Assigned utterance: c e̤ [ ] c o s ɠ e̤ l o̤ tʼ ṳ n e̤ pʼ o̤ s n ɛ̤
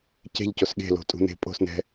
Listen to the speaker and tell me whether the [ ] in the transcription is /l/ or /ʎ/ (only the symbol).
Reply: ʎ